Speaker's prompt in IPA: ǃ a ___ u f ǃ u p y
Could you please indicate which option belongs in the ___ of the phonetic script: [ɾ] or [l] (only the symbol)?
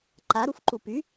ɾ